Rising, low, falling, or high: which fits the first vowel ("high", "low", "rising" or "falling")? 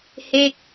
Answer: falling